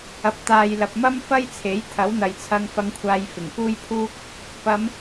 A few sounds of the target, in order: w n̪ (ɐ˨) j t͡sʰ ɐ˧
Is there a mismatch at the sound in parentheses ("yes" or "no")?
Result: no